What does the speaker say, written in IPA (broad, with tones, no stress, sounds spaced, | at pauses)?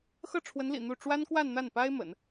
x ɤ˥˩ ʈ͡ʂʰ w ə˧˥ n l ḭ˨˩ n̪ u˥˩ ʈ͡ʂ w a˥ n k w a˥˧ n n̪ a˥˩ n p a˥ ɪ̯ m ə̰˨˩˦ n